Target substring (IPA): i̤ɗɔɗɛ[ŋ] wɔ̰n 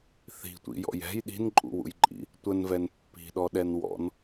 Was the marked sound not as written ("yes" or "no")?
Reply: yes